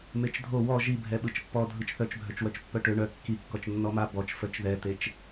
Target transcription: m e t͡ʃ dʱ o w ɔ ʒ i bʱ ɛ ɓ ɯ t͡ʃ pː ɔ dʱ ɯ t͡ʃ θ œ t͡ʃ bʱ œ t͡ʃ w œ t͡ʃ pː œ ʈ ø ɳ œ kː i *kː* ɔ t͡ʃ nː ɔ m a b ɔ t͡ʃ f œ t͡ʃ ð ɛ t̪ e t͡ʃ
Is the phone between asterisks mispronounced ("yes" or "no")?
no